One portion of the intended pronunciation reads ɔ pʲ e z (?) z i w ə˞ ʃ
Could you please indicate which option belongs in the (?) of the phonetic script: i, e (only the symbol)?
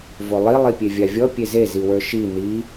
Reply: e